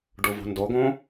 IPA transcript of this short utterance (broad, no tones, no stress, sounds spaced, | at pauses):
ɖ u v ṳ n d o ɡ õ